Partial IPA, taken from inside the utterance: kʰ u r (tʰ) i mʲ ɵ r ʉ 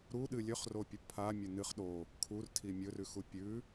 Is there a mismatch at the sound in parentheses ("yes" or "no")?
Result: no